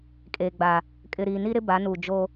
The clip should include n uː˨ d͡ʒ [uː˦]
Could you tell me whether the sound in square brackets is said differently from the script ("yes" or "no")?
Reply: yes